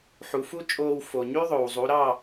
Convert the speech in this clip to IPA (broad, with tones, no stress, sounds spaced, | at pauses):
ħ u˨ f u˦ t͡ʃʼ oː˧ w f o˨ ɲ y˦ ðˤ o˨ w zˤ u˨˦ ɾ ɑ˦˨